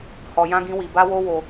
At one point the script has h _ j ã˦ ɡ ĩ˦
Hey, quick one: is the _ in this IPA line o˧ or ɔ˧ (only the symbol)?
ɔ˧